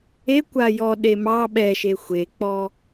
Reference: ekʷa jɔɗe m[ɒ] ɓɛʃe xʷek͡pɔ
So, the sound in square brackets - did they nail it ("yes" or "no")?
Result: no